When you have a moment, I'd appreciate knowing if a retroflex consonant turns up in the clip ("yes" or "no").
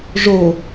yes